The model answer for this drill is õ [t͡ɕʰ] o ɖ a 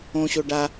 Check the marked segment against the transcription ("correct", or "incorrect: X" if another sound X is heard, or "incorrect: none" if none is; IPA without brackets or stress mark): incorrect: ɕ